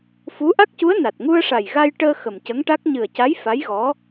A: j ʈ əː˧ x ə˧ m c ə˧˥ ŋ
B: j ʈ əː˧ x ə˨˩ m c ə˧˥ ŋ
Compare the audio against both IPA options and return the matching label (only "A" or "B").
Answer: B